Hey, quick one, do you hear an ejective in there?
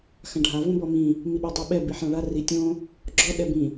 no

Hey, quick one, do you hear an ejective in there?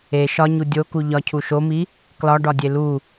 no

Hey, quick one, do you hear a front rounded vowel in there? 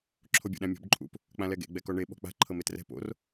no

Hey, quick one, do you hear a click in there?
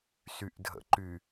yes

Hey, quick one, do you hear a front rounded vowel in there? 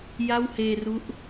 no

